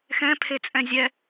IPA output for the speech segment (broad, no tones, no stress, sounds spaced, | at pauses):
x ɛ̃ pʰ e t͡sʼ ɛ̃ zʲ ɛ